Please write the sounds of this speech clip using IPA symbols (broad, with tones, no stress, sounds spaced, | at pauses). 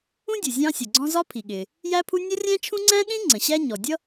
ũ˥ dʲ u˩ zʲ ɑ̃˥ sʲ ʌ˩ ɡ͡ǀ ɔ̃˥ z ɒ˥ pʰ i˩ ɠ ɪ˩ | j æ˥ pʰ u˥ nʲ ɒ˥ rʲ æ̃˥ t͡ʃʰ ũ˥ ŋ͡ǀ æ̃˥ ɗ ĩ˥ ŋ͡ǀ ə̃˩ ɕ æ˥ ɲ ɔ˩ dʲ ʌ˥